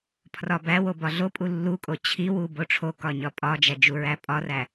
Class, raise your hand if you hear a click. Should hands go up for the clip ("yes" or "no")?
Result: no